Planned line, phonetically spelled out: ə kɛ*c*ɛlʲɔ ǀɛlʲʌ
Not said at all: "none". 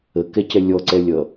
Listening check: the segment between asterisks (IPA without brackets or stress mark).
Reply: c